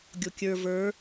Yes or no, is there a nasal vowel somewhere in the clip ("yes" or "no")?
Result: no